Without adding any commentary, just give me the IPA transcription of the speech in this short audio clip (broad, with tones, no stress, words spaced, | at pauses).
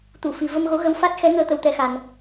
t̪u˨˩˨fi˨˩˨ və˧mɣo˧˥ɣə˧˥w fa˦˥t̚xɛ˧˥ŋəː˧ t̪ə˧wt̪ɛ˧xa˨˩n